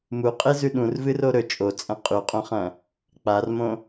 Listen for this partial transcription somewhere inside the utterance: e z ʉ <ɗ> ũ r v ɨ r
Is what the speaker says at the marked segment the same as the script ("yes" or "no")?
yes